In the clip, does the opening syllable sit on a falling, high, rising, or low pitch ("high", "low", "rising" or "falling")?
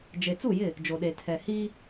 low